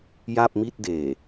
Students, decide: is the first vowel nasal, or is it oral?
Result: oral